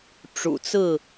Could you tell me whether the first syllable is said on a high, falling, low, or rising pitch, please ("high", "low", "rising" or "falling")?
low